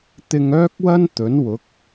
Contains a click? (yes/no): no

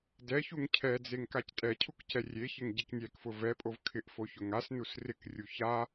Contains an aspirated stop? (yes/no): yes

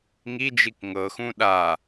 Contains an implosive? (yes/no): yes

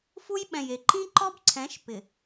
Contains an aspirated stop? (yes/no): yes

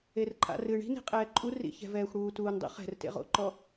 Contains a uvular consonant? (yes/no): yes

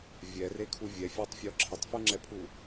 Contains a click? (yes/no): yes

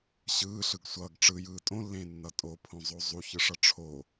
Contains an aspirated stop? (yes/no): yes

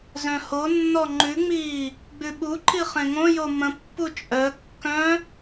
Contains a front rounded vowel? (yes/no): yes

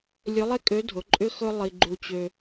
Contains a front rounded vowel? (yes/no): yes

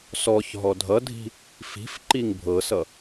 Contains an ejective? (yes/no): no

